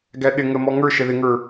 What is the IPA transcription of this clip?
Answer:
ɡ æ ɗ ɪ ŋ ə m ɔ ŋ ə˞ ʃ ɛ ð ɪ ŋ ə˞

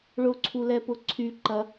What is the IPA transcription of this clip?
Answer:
ɭ ʊ ǀʰ u l ɛ p ʊ ǀʰ y ǃ ɐ

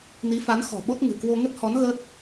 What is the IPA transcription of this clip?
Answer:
n i˨˦ f a˨˦ n x ɔ̤˨˩ ɓ o˦˥ t̚ ŋ ɨ̤˨˩ k w o˧ ŋ ə˦˥ t̚ h ɔ˨˦ n ɣ ə˦˥ t̚

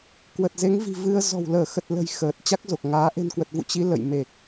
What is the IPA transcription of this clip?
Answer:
k w ə˨˩ t̚ z e˨˦ ŋ v i̤˨˩ v ɨ˧ ə̯ z ɔ̤˨˩ w l əː˧˩ x ə˨˩ t̚ l ə̤˨˩ j x əː˨˩ t̚ t͡ɕ a˦˥ k̚ z o˨˩ k̚ ŋ aː˨˦ ʔ e̤˨˩ n k w ə˨˩ t̚ v ṵ˧˨ t͡ɕ i˨˦ l ə̰˧˨ j m e˨˩ k̚

